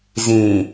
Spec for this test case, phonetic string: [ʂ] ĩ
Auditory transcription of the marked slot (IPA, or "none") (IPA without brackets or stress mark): z